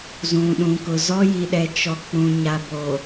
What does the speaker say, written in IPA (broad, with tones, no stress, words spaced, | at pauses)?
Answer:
zũ˨ɗũ˨kʊ˨ zɔ˦ji˨ɗɛ˨ t͡ʃɔ˨k͡pũ˨ɲa˨ bo˨